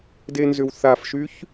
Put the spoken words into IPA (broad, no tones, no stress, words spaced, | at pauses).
denzʏwθafʃyç